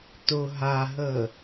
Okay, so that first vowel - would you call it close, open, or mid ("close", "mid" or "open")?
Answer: close